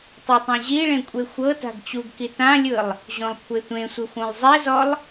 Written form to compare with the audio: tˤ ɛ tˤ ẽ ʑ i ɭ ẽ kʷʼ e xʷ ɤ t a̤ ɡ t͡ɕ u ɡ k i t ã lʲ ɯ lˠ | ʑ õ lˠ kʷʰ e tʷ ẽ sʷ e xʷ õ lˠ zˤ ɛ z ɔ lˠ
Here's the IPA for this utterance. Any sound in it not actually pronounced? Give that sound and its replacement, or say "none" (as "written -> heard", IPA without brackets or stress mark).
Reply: none